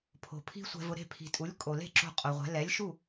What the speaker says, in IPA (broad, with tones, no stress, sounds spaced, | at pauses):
pʰ o̤˩ pʰ i̤˥ sʷ ɛ̤˧ v ʊ˧ ɾ e̤˥˩ pʰ i̤˩ tʼ u˩˥ lʲ kʼ o˩ l e̤˥˩ ǁ o̤˥˩ qʼ o˩ ʁʷ ɛ̤˩˥ l ɛ˩˥ lʲ ʃ u˥˩